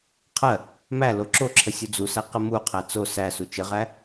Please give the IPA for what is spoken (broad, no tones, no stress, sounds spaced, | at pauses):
qʰ ɜ | m æ l o ǁ o ǁʰ ə sʲ u d͡z u s æ q ə m u qʰ æ t͡s o s æ s u t͡ʃ ə ʁ æ